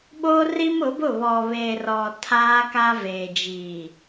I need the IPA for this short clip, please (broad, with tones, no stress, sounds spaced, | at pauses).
ɓ oː˦ r i˦ m ʊ˨˦ b ʊ˦˨ β ɔ˨ β eː˨ r ɔ˨ tʰ aː˦ k a˦ v eː˨ d͡ʒ iː˨